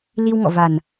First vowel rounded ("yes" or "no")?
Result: no